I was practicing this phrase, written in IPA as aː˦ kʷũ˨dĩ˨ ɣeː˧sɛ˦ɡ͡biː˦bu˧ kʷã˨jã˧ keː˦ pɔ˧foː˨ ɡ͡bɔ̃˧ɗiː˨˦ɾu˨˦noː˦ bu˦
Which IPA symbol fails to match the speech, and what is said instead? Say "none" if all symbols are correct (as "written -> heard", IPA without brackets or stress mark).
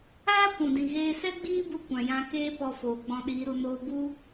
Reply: none